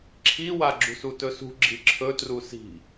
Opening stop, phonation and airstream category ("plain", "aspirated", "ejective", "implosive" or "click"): click